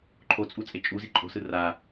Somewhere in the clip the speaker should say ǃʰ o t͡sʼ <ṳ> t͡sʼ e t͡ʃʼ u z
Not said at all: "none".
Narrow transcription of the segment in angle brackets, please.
u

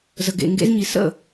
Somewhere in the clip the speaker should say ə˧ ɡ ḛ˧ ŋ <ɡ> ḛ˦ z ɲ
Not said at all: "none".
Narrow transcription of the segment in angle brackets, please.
ɡ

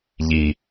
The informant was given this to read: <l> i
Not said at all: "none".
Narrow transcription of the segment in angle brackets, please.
ʎ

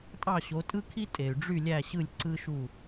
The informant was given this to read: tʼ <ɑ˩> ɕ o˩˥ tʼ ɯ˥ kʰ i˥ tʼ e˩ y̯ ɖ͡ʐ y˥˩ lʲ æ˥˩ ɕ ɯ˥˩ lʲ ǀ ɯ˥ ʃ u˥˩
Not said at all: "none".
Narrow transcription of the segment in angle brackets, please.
ɑ˥˩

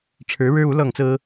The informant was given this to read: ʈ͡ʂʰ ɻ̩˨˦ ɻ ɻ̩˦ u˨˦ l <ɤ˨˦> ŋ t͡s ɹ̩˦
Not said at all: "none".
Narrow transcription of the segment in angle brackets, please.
ɤ˥˨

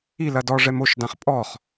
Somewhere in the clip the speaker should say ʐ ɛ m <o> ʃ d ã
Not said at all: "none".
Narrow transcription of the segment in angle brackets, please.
o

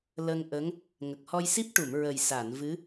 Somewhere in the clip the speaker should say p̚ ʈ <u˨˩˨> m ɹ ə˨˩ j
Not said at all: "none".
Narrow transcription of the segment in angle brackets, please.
u˨˩˨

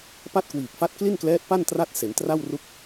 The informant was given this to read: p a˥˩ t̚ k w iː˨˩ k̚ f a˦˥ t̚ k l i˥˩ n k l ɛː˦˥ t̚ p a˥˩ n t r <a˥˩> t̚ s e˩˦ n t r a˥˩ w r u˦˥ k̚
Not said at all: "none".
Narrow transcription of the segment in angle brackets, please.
a˥˩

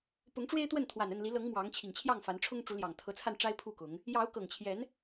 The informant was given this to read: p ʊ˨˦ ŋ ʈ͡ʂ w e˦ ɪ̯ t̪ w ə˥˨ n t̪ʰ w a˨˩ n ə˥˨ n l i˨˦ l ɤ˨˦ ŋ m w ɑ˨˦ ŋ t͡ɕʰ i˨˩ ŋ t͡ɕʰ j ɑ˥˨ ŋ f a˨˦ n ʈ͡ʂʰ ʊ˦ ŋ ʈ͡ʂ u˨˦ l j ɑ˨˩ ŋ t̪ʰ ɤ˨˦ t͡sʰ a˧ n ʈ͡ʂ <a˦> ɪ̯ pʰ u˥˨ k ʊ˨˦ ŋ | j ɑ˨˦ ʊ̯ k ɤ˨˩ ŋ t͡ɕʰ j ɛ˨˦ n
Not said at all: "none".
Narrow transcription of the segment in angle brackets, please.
a˦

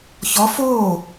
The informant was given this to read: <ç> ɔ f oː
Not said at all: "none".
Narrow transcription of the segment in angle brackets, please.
ç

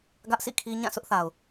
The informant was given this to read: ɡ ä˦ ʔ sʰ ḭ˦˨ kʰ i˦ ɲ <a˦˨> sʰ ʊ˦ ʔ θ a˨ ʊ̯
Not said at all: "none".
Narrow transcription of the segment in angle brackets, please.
ã˦˨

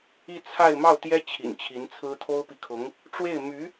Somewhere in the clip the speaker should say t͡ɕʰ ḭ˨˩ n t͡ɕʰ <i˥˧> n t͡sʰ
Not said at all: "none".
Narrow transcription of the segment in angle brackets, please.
i˧˥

